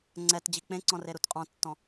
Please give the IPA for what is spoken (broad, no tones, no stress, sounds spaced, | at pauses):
ŋ͡ǀ ɛ t d͡ʑ i k͡p ẽ ǀ ɔ̃ r e ɾ u t qʼ ɔ̃ tː ɔ̃